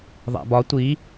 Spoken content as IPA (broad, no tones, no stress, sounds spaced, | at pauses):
ðˤ æ̰ b ɒ tʷ i